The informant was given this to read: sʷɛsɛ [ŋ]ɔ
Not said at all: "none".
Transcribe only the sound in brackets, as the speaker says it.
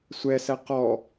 q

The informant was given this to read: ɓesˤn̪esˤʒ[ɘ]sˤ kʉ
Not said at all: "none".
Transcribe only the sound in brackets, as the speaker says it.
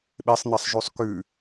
ʉ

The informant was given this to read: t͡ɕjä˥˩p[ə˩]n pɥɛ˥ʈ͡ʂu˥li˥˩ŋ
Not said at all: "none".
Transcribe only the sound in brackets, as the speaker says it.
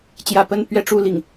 ə˥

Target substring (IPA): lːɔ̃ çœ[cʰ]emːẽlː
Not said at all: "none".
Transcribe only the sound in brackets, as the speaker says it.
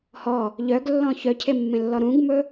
cʰ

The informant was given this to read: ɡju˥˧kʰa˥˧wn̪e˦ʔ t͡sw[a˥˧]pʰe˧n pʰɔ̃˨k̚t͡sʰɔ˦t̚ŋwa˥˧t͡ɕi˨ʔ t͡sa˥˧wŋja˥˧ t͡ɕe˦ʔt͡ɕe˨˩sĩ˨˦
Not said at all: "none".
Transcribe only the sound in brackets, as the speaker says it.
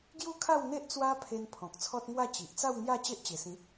a˦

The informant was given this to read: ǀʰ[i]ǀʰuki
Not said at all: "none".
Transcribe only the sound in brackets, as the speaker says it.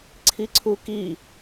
i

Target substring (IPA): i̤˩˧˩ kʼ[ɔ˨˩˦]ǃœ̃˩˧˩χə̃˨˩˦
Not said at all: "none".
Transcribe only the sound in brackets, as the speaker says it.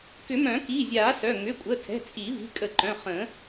ə˨˩˦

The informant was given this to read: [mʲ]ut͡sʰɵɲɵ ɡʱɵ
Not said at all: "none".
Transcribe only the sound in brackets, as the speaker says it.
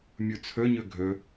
mʲ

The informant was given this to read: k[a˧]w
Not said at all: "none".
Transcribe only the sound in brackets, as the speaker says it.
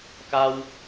a˧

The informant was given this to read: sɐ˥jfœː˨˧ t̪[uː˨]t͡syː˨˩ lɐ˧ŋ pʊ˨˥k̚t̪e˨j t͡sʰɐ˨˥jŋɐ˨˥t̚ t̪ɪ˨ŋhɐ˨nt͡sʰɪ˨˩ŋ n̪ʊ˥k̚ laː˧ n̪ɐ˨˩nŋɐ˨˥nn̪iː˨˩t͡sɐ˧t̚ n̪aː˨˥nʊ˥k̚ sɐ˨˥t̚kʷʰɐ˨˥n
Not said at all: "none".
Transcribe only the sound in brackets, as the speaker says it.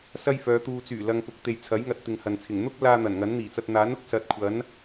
uː˨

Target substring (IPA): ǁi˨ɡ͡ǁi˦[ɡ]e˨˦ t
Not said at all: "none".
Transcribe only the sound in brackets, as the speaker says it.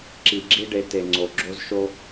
ɖ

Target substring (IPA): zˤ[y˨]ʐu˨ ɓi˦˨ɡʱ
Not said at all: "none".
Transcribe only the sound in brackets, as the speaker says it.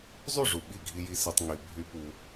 y˦˨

